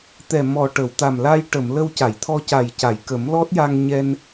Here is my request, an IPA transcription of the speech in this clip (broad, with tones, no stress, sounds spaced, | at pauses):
t̪ ɛ˨˩ m ɔ˨˩ ʈ ə˨˩˨ w t̪ a˨˩ m l a˧ j ʈ ə˨˩˨ m l ə˧ w c a˨˩˨ j t̪ʰ ɔ˧ c a˨˩ j c a˨˩˨ j k ə˨˩˦ m l ɔ˦˥ t̚ j a˧ ŋ ɲ ɛ˧ n